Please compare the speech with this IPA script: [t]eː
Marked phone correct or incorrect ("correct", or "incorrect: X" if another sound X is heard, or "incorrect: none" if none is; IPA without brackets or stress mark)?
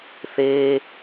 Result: incorrect: θ